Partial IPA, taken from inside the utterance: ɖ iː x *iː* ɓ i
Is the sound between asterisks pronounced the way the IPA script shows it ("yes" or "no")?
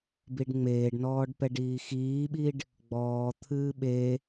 yes